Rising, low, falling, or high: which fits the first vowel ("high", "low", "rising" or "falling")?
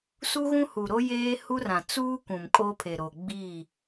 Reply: high